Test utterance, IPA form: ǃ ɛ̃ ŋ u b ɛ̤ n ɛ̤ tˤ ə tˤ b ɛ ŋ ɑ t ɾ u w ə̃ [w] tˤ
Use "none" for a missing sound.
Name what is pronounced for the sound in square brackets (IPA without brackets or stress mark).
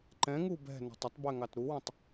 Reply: none